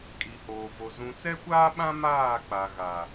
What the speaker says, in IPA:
kʼ i˨ h oː˨ v o˨ z ũ˨ t͡s ɛ˦ kʷ aː˦ ɓ ã˦ m aː˦˨ k͡p a˨ ɣ a˨

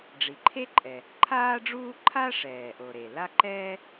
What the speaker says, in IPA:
ɖ͡ʐ i˩ ǃʰ e˥ ǃʼ ɛ˩ | ǃʰ aː˥ ɖ͡ʐ uː˥ ǃʰ a˥ ʂ ɛː˩ ʔ o˩ ɾ e˩ l a˥ ǃ ɛː˥

